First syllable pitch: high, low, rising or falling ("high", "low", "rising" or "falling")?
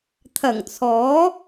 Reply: low